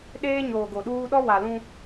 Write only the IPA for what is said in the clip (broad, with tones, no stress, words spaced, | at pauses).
ɗeː˦ɲoː˨ɡo˨ɗuː˦ ɗɔ˦wa˨lũ˦